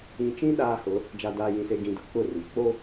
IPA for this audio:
ĩ˨ t͡ʃ ĩ˦ ɗ aː˦ h ʊ˨˦ | d͡ʒ a˨ d aː˨ j ĩ˨ s e˨ ɡ ĩ˨ d ʊ˨ k͡p ʊ˦˨ r i˨ k͡p o˦

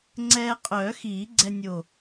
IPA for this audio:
ŋ͡ǀ ɛː˧ qʼ œː˨˩˦ x iː˨˩˦ ɡ͡ǀ ɛ˧ nʲ o˧˩

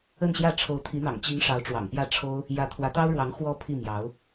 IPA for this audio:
ə˥˧ n ɕ j ä˥˩ ʈ͡ʂʰ o˧˥ ʊ̯ t̪ʰ i˧˥ n̪ ɑ̰˨˩ ŋ t͡ɕ i˧˥ ŋ ʂ ɑ˧˥ ʊ̯ ʈ͡ʂ w ɑ̰˨˩ ŋ p j ä˥˩ ʈ͡ʂʰ o˥ ʊ̯ | j ä˧˥ t̪ʰ w ä˧˥ t̪ ɑ˥ ʊ̯ ɻ w ɑ˧˥ ŋ x w ɔ˧˥ pʰ i˥˩ m j ɑ˧˥ ʊ̯

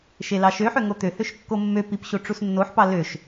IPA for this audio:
ʃ e l ɑ ʃ ø ħ ø ŋ o t̪ ø h ø ʃ kː o mː ø p i p ɕ o ʈ͡ʂ u s nː o ħ p ɑ l ø ʃ

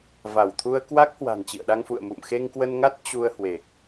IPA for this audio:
v a˧˩ w t̪ʰ u˧ ə̯ k w a˦˥ k̚ h w a̤˨˩ n t͡ɕ ḭ˧˨ ə̯ ɗ a˧ ŋ f ṵ˧˨ ə̯ m ṵ˧˨ m x e˧ ŋ k w ə˧ n ŋ a˦˥ t̚ t͡ɕ u˧ ə̯ h w e˨˩ k̚

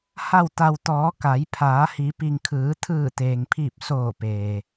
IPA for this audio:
h a˧˩ w t̪ a˩ w t̪ ɔː˩˧ k a˩˧ j pʰ aː˩˧ h i˩˧ p i˩ ŋ kʰ ɯː˩˧ t̪ʰ ɯː˧˩ t̪ eː˩ ŋ pʰ iː˧˩ p̚ s oː˧˩ p eː˩

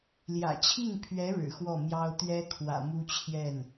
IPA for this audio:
l j ä̰˨˩ t͡ɕʰ i˥˩ ŋ pʰ ɥ ɛ˧˥ ɻ ɻ̩˨˩ x w ɔ˥˩ m j ɑ˥ ʊ̯ t̪ ɥ ɛ˥ kʰ w ä̰˨˩ m u˥ t͡ɕʰ j ɛ˥˩ n

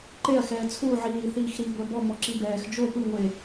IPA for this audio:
ǃ e ɐ̯ x ɛː t͡sʰ u ʕ iː θ iː x ɾ i ɡʷ ɛ b ɔ m ɔ ǁ i b ɛː x d͡ʒ o p ɯ ŋʷ e

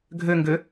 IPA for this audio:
ɡʱ ø ŋ ɡ ø

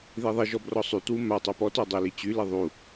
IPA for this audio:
ð i ðˤ i ʒ ɔ b r ɔ sˤ y t w u m a tˤ œ p ɔ t œ dˤ i l i t͡ɕ y l i ðˤ u

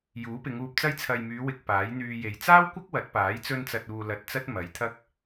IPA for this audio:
j uː˨˥ p ɪ˨˧ ŋ uː˧ p̚ t͡s ɐ˥ j t͡sʰ ɐ˨ j m yː˨˧ w ɪ˧ k̚ p aː˨˥ j n̪ yː˧ j e˨ j t͡s aː˥ w kʷ ɐ˥ k̚ w ɐ˨˥ t̚ p aː˨˥ j t͡s ɵ˧ n t͡s ɐ˨ t̚ uː˨ l ɐ˧ t̚ t͡s ɐ˥ t̚ m ɐ˨˥ j t̪ʰ ɐ˥ k̚

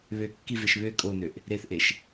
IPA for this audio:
β ø kː i v e ʃ β ø kʼ o n ø ʔ | ɾ e θ ʔ e ʃ

